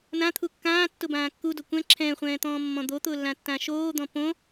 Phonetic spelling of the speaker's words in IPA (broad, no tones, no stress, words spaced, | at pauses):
nãt̪ʰu kːãːtːʊbãː kːudo kʷɛ̃ ǁʰɛ̃ːχʷɛ̃ːt̪ɔ̃ːmːɔ̃ d̪ot̪ʊːlːãtːã ʃoːd̪ɔ̃ põ